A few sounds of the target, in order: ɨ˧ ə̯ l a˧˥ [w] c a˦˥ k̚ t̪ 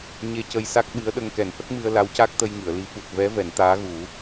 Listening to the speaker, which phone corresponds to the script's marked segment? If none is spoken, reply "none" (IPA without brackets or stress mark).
w